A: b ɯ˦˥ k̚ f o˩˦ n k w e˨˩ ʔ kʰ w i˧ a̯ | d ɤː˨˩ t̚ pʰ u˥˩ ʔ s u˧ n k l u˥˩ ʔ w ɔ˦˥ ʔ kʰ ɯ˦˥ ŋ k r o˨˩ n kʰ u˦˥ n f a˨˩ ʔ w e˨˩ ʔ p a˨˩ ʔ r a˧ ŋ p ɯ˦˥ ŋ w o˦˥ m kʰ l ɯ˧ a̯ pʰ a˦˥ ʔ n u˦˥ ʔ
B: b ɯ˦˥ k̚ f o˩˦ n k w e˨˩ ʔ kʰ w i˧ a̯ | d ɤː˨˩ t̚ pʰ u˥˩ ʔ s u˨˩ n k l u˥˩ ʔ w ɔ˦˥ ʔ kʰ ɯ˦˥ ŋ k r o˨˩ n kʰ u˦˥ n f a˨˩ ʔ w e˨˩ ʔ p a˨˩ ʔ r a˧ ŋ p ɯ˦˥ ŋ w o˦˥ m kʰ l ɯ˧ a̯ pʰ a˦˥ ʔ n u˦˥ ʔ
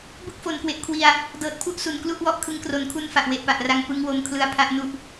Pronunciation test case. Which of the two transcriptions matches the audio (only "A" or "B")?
B